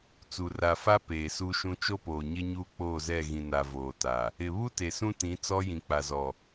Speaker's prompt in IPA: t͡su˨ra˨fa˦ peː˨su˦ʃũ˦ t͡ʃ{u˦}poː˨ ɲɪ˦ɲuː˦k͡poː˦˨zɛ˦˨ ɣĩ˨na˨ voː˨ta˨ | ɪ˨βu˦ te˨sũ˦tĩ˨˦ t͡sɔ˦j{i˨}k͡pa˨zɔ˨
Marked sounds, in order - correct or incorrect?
incorrect: o˦, incorrect: ĩ˨

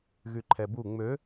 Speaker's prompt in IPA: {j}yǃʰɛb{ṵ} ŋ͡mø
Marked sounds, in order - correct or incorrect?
incorrect: ɣ, incorrect: u

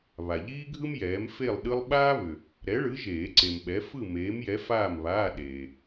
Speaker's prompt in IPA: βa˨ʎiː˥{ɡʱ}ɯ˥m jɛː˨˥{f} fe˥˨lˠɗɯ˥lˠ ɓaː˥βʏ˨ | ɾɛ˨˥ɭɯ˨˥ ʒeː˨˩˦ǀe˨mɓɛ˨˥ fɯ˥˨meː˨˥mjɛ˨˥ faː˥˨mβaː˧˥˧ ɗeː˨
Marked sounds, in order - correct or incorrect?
correct, incorrect: m

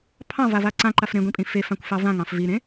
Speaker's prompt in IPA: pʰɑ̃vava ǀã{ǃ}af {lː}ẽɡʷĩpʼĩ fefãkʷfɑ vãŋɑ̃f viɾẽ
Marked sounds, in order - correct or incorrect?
correct, incorrect: ɾ

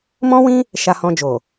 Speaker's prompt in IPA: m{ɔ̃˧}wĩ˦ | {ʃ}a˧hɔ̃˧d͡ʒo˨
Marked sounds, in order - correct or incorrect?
incorrect: ɔ̃˦, correct

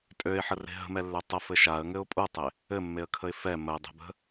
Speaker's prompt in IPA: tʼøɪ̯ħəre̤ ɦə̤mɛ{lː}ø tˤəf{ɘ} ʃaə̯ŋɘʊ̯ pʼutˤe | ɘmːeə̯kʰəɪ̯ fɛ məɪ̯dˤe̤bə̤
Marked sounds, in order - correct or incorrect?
correct, correct

